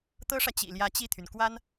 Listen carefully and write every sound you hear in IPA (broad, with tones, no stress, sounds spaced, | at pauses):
t̪ ɤ˥ ʂ ä˨ t͡ɕ ḭ˨˩ l j ä˧˥ t͡ɕ i˥˩ t̪ʰ y˩ n k w a˥ n